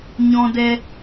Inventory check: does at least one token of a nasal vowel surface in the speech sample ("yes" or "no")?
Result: yes